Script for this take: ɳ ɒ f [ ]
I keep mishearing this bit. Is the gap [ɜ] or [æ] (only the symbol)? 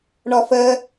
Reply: ɜ